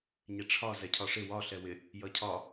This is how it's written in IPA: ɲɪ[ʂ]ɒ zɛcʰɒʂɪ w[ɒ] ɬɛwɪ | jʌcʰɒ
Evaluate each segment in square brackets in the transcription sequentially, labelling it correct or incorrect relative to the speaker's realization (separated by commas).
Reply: incorrect, correct